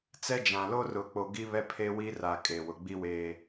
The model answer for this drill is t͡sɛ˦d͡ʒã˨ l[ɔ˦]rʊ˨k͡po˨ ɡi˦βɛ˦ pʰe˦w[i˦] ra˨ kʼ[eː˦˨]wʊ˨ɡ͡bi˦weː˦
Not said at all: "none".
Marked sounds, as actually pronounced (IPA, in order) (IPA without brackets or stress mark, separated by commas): o˦, i˦, eː˨